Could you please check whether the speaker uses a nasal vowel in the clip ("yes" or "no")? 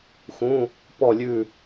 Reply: yes